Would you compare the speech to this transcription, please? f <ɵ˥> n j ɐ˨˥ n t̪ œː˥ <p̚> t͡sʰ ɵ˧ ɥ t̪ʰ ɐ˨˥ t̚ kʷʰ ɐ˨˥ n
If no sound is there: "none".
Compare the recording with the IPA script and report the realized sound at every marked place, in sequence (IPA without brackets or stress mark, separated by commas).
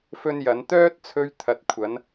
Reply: ɵ˥, t̚